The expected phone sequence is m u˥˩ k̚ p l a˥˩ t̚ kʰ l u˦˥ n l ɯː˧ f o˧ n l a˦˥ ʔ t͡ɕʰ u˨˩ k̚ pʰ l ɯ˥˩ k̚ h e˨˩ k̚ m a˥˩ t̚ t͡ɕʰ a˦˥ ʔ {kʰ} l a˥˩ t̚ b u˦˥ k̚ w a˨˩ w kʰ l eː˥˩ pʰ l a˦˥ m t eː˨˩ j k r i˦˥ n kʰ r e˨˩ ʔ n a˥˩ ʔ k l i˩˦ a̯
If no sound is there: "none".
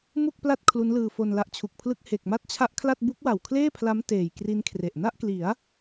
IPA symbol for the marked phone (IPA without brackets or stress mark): kʰ